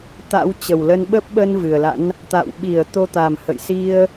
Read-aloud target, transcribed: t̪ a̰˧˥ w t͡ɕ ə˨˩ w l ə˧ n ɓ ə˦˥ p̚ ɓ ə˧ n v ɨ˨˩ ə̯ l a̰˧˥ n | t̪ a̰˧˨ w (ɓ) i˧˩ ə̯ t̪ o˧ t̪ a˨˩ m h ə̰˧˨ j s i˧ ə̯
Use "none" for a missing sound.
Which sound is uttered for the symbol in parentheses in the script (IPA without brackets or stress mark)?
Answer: ɓ